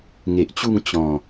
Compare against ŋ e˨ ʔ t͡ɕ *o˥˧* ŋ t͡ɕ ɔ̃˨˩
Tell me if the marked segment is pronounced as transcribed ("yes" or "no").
no